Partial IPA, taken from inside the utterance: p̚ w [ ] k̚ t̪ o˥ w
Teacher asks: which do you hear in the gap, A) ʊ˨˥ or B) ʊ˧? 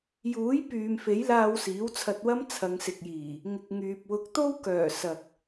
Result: A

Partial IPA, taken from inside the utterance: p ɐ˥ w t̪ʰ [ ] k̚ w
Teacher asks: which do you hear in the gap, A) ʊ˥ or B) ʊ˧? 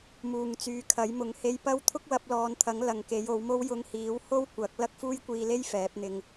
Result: A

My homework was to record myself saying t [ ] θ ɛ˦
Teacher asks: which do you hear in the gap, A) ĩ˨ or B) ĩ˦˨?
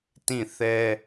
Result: B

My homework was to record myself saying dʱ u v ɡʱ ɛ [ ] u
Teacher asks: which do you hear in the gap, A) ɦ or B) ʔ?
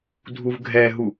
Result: A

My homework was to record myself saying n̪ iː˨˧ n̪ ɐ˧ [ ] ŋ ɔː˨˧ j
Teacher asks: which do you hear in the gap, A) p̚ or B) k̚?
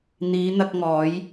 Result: B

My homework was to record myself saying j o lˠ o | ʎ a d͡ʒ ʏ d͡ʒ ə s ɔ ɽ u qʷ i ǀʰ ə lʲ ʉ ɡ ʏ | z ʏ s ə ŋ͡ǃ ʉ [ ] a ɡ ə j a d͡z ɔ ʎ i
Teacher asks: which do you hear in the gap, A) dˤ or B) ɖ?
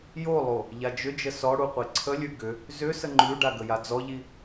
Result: B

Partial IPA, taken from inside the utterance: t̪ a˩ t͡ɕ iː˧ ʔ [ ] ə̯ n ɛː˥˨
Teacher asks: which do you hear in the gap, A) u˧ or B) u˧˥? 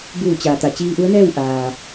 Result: B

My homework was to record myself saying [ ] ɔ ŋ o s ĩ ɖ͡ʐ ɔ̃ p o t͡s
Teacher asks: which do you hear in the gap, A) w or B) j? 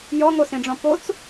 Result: B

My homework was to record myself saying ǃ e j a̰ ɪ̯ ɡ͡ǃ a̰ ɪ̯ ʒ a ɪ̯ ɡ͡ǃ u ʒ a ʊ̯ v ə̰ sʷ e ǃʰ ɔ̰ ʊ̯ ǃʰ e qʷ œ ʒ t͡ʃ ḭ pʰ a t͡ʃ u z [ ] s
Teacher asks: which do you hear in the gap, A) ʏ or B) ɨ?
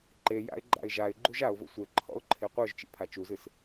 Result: B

